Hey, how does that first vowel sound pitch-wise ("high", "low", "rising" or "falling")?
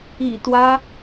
low